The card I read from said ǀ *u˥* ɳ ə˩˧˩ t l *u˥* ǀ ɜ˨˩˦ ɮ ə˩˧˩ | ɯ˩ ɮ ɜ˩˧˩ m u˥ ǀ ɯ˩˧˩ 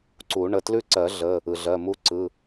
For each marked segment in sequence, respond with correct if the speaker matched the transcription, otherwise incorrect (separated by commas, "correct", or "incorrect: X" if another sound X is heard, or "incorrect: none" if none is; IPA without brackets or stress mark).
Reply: incorrect: u˨˩˦, incorrect: ʉ˥